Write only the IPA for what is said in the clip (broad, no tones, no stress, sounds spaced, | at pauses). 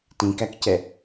t ĩ k æ k c ɛ